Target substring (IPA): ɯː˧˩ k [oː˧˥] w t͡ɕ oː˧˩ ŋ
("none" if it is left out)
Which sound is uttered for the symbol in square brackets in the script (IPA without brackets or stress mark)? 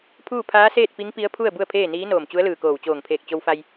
oː˧˩